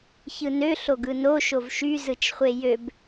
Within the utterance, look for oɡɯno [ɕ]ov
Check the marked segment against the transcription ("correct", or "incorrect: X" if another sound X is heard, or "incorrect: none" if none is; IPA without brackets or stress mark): incorrect: ʃ